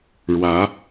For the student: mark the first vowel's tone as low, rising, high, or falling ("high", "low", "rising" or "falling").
rising